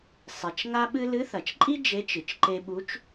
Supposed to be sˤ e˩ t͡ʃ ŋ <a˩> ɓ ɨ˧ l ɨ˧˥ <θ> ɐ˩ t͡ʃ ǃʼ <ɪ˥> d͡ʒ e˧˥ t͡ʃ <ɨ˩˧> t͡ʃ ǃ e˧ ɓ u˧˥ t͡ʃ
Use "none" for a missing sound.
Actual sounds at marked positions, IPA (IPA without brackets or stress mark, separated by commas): a˧, θ, i˥, ɨ˩